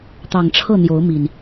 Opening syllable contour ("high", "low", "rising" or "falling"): low